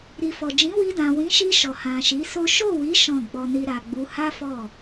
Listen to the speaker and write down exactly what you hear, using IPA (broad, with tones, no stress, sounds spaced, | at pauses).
ɾ i˨ f ɔ˨ d͡ʒ ĩ˨˦ w i˧ d ã˨ w ĩ˨˦ ʃ i˧ ʃ ɔ˨ h ã˨ ʃ i˨˦ s o˦ ʃ o˦˨ w i˨˦ ʃ ɔ̃˦˨ ɡ͡b ɔ˧ n i˧ ɾ a˨ ɡ͡b u˨˦ h a˦ f ɔ˦˨